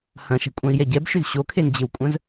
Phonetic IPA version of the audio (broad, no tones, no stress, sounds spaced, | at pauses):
h ɐ̃ ʃ ɛ̤ kʷʼ œ̃ i̯ j ɛ ɟ ɛ b ʃ ʏ z ɕ o kʰ e n d͡ʑ ɪ w kʷʼ œ̃ z